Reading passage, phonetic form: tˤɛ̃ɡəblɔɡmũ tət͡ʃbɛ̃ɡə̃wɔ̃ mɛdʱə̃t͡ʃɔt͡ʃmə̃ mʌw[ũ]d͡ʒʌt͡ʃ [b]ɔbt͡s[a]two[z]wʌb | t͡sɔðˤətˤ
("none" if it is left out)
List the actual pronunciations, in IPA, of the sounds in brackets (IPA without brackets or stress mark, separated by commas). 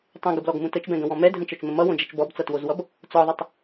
õ, b, ʌ, z